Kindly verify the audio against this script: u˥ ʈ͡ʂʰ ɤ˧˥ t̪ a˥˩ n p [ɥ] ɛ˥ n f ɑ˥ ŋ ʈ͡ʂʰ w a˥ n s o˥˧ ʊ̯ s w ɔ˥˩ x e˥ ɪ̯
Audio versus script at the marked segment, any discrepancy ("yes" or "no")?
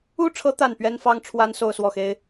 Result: no